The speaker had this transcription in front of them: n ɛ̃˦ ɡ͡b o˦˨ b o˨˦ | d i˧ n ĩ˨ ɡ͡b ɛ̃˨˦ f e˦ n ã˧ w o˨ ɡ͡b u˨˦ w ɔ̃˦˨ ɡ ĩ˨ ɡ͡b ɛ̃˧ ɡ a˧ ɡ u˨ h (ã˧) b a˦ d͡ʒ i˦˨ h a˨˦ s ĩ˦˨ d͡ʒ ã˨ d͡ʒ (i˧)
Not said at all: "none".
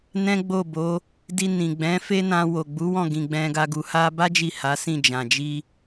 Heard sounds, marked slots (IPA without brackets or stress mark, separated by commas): a˧, i˧